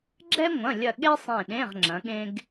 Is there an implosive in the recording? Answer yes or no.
yes